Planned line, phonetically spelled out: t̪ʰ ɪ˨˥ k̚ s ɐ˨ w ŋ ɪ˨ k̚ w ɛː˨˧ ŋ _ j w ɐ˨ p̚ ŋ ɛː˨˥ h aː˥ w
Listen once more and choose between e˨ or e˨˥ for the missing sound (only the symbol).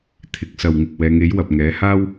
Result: e˨˥